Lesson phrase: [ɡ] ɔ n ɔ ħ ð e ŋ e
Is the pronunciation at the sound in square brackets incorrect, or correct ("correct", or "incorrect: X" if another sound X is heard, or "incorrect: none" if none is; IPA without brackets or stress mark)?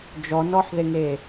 incorrect: d͡ʒ